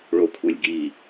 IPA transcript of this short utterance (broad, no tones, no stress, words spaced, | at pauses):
ɭokʷʰelʲɡi